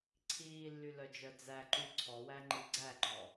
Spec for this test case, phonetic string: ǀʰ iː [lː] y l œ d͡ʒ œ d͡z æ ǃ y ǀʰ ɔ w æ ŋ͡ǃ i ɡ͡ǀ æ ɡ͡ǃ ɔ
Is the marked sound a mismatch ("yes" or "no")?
no